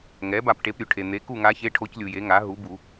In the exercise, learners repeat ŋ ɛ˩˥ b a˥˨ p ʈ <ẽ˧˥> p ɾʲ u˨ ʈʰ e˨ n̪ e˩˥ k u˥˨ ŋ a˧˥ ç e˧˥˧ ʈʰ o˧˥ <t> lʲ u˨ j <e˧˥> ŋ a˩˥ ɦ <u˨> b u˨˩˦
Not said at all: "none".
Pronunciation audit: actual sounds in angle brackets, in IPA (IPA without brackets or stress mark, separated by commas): e˧˥, c, e˩˥, u˩˥